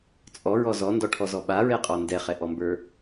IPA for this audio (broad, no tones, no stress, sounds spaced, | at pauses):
t͡sʼ ɔ ɹ ɔ z ɔ n d ɔ ʈʰ ɔ z ɔ ɓ a ɹ ɛ qʼ ɔ n d ɛ χ ɛ ʔ ɔ m b ə˞